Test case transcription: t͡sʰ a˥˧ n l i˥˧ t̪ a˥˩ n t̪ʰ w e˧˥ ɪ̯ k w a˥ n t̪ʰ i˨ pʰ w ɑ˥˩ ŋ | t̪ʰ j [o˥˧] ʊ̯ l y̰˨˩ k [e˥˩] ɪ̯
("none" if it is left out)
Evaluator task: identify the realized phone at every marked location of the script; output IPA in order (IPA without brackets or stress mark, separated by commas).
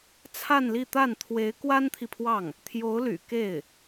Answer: o˧˥, e˥˩